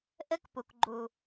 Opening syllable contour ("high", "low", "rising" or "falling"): high